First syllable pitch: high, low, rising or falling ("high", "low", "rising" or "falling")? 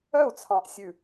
falling